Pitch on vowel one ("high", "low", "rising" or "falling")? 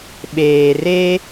low